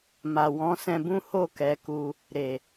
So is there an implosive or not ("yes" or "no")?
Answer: no